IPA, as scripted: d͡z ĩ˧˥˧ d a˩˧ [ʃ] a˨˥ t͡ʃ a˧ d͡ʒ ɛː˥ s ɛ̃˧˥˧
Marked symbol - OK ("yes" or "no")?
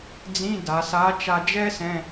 no